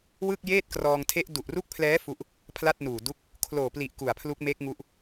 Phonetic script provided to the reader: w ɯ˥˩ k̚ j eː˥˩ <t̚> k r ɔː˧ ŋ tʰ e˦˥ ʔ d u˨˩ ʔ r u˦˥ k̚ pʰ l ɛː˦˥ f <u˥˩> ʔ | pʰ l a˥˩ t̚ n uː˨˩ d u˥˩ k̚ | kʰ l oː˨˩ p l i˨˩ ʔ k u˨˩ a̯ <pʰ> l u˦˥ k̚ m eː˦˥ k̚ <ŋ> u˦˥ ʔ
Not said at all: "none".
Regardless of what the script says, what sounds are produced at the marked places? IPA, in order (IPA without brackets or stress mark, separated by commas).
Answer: t̚, u˥˩, pʰ, ŋ